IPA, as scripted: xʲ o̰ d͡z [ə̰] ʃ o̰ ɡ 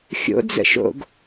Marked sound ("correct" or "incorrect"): correct